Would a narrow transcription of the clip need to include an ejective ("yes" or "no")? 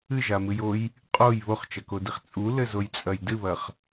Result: yes